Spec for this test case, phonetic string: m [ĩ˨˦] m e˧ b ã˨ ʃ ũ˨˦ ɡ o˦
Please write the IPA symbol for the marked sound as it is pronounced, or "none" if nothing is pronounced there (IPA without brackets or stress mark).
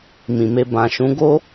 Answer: ĩ˨